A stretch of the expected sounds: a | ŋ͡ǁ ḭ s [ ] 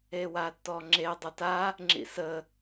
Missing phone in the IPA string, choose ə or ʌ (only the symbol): ə